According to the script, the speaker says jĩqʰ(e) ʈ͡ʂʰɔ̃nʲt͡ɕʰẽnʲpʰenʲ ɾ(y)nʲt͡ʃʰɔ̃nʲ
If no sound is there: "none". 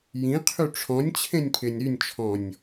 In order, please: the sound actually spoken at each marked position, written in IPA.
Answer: y, y

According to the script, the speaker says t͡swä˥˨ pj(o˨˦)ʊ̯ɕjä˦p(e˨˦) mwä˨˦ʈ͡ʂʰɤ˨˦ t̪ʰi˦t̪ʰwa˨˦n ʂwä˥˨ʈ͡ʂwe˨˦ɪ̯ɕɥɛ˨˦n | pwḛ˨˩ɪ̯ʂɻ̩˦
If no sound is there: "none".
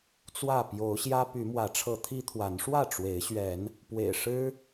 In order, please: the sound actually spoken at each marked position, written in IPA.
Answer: o˨˦, y˨˦

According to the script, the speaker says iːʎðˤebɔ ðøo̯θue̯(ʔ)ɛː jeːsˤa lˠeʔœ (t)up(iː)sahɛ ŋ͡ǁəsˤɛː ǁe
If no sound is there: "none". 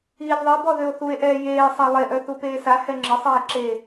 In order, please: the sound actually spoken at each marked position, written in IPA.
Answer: ʔ, θ, eː

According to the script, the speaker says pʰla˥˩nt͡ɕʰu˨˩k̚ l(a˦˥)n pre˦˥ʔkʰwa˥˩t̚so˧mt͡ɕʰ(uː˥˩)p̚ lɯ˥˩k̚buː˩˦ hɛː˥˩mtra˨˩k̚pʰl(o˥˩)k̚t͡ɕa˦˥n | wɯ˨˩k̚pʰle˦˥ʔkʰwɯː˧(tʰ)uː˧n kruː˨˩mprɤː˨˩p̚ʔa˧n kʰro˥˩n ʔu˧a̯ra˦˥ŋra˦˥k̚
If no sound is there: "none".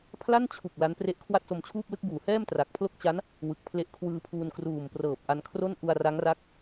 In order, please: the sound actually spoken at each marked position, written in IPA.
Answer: a˦˥, uː˥˩, o˥˩, pʰ

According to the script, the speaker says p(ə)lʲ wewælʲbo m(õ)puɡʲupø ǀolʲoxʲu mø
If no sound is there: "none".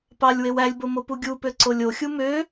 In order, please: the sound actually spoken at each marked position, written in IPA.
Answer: ɑ, o

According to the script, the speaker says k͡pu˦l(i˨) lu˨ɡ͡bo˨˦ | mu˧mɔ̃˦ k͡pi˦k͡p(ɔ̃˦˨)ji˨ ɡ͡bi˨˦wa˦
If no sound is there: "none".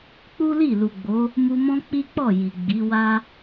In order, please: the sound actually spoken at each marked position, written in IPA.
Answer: i˦˨, ɔ˦˨

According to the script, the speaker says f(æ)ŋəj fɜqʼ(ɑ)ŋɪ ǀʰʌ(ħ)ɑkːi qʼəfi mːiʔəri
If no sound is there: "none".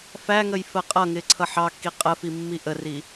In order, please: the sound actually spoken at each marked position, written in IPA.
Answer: æ, ʌ, ħ

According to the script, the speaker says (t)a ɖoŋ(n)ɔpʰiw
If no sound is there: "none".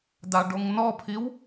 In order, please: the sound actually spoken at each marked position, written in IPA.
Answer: d, n

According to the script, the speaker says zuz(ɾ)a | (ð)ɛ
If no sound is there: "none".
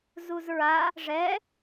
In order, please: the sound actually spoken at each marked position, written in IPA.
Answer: ɹ, ʐ

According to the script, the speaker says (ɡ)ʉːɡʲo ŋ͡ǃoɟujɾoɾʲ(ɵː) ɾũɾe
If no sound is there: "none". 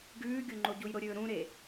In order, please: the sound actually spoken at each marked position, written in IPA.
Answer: ɡ, ɵː

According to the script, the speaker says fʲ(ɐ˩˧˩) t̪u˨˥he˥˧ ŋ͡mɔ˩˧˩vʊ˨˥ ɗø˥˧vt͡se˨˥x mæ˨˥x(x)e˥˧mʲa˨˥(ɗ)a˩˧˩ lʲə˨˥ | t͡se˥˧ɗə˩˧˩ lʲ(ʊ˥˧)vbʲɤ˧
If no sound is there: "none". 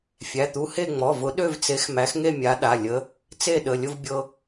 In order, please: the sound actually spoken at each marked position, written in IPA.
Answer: æ˩˧˩, ŋ, ɗ, ʊ˥˧

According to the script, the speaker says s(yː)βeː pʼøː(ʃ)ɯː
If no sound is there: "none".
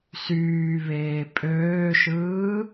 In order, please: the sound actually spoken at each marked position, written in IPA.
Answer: yː, ʃ

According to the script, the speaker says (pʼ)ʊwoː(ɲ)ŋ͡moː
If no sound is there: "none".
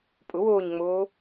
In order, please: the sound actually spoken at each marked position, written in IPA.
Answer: pʼ, ɲ

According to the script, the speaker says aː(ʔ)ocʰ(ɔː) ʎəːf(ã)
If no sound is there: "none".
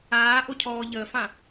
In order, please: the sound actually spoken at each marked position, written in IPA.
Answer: ʔ, ɔː, ã

